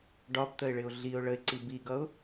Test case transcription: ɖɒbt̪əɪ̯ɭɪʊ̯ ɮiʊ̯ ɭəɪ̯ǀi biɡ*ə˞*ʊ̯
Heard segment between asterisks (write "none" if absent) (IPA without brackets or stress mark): ʌ